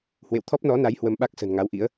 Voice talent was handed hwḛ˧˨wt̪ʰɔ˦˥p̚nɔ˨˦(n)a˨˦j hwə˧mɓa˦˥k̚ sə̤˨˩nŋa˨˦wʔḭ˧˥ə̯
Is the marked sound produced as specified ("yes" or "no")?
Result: yes